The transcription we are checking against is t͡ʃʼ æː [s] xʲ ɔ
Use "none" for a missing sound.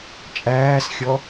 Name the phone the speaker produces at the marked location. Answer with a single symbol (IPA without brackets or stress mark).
s